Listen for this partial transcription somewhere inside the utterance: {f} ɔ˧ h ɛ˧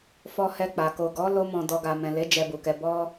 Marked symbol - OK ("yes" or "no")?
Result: yes